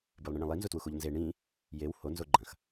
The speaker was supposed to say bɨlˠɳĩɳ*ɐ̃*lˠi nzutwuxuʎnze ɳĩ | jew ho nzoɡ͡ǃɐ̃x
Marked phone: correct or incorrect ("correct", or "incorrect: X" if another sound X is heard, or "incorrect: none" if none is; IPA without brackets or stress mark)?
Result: correct